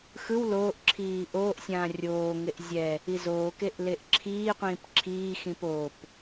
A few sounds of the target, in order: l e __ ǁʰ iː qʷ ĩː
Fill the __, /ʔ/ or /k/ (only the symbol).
ʔ